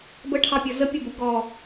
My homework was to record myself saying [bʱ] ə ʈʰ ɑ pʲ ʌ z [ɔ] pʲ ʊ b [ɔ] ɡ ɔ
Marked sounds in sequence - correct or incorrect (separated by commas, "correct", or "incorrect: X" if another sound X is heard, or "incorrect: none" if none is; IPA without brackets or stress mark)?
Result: incorrect: b, incorrect: ə, incorrect: ʊ